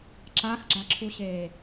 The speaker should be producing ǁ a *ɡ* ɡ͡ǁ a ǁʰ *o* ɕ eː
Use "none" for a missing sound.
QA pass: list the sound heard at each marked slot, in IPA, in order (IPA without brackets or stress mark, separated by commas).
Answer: x, u